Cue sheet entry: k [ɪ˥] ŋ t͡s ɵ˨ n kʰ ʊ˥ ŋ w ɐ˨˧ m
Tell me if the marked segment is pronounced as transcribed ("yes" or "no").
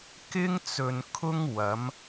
yes